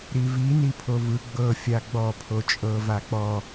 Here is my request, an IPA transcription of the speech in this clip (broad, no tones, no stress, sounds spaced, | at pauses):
ɾ i v i n i pʰ o v ɯ ɡ͡b ɤ fʲ a ɡ͡b ɔ pʰ o t͡ʃʼ ɤ v a k͡p ɔ